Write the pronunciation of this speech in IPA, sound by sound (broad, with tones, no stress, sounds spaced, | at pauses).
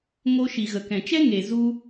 ŋ o˧ ʃ i˨ ɣ ə˨ k ɛ̃˨ t͡ʃ ɛ˦ ŋ e˨ z u˧